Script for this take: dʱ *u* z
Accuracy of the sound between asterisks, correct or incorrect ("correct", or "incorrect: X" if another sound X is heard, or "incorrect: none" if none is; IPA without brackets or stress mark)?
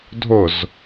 incorrect: ʊ